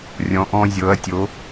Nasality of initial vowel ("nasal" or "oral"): nasal